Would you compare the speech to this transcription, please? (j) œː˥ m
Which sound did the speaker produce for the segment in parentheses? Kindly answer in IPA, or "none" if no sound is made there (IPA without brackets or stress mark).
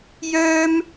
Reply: j